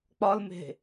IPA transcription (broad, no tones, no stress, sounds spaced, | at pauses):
k͡p ɒ l m e̤